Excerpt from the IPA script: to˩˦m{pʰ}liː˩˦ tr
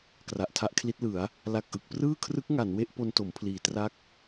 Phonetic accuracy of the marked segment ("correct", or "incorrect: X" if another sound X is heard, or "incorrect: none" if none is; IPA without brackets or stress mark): correct